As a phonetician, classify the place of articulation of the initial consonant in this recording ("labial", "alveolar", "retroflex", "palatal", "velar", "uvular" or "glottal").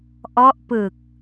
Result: glottal